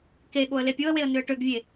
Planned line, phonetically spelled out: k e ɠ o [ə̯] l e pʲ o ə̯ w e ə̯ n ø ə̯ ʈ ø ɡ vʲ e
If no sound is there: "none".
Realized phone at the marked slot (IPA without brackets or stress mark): ə̯